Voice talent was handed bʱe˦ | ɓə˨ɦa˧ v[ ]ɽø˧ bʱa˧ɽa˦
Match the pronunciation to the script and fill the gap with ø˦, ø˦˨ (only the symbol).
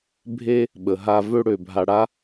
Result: ø˦